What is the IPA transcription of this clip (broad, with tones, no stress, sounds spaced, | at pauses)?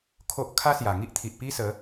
kʰ o˦ ʔ kʰ a˦ s j a˨˩ ŋ i˦ ʔ t̪ʰ i˨ ʔ p i˦ s ə˨˦